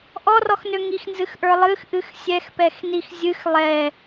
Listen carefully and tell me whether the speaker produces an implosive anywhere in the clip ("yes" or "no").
no